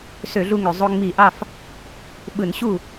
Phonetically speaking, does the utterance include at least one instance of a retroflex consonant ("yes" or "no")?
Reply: no